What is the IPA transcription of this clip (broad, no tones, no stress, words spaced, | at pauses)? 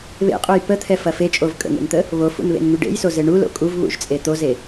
βḛqʼuj pət̪ʰɛfɐ fet͡ʃʼov kʼə̰ŋḛnt̪ə | βofṵnβḛnŋy ɖḛjsoze ɳulo̰ kʼuvβṵʒt͡sʼe t̪oze